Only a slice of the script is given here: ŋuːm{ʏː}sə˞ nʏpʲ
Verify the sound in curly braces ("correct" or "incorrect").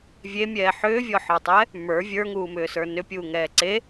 correct